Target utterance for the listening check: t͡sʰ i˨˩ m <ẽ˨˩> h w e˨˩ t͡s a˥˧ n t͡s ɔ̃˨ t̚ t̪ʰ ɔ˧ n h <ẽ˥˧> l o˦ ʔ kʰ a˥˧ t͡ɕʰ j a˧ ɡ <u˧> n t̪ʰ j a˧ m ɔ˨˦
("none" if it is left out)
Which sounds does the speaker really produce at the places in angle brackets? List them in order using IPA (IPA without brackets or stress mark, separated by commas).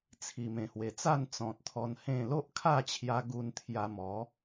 ẽ˨˩, ẽ˥˧, u˧